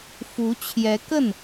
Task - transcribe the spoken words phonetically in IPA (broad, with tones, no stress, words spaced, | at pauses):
fu˧˥t͡ɕʰjɛ˧˥kə˥˩n